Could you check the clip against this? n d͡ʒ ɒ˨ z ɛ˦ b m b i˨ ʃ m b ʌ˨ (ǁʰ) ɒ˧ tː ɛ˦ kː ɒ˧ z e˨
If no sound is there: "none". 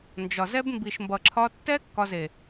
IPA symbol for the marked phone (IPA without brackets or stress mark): ǁʰ